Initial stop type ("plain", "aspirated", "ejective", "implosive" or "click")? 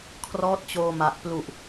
aspirated